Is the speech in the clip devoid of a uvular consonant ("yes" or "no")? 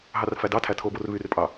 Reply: yes